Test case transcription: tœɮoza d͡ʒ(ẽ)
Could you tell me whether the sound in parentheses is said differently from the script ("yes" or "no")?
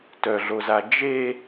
yes